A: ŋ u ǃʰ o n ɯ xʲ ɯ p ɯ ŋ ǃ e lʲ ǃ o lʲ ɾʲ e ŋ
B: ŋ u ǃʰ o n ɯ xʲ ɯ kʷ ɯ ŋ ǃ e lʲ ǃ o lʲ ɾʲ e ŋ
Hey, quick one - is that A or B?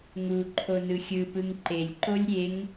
A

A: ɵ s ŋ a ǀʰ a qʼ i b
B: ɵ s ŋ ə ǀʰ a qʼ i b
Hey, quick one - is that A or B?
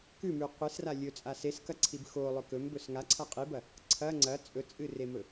A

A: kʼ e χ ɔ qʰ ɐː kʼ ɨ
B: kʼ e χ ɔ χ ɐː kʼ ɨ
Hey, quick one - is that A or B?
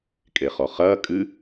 B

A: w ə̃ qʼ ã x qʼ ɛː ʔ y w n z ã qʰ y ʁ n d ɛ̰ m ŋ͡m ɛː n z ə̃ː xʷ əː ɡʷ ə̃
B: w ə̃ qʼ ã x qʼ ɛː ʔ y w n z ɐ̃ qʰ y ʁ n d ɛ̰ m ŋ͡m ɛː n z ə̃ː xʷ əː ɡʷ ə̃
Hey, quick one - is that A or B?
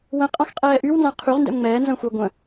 A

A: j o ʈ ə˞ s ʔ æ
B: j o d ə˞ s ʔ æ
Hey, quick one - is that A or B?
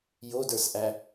B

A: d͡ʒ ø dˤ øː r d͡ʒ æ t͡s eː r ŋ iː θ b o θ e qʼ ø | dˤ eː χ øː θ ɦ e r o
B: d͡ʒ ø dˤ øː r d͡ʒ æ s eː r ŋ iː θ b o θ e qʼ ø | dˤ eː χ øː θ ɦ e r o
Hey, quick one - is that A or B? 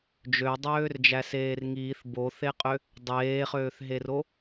B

